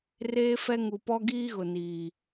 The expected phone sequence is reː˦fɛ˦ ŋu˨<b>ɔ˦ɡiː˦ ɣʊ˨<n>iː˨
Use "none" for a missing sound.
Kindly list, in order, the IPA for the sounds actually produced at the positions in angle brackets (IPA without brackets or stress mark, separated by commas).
p, n